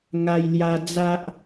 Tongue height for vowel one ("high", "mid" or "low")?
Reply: low